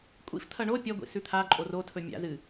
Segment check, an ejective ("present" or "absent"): present